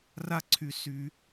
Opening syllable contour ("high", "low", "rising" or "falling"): high